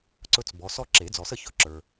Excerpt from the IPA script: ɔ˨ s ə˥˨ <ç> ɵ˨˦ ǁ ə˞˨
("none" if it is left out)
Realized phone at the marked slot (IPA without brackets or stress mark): ç